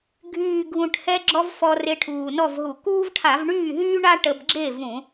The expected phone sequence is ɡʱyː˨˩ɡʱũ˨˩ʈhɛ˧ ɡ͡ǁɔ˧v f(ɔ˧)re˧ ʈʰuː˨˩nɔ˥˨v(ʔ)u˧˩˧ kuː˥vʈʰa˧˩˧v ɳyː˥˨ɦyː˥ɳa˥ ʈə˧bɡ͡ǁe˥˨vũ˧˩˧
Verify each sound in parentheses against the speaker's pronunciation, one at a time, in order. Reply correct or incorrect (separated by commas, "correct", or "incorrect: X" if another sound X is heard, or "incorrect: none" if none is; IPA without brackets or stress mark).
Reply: correct, incorrect: ɦ